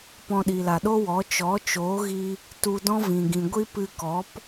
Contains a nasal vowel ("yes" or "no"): yes